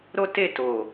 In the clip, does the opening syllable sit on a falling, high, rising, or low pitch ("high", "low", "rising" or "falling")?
high